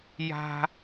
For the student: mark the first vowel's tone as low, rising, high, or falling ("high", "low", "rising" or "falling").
high